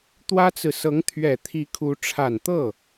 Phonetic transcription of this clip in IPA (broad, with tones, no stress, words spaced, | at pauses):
t̪wä˥t͡sɹ̩˨ sɤ˧˥ŋt̪ʰɥɛ˨˩t̪ʰi˧˥ kʰu˧˥ ʈ͡ʂʰa˨˩nt̪ɤ˥˩